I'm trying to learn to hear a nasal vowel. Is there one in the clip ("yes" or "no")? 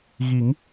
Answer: no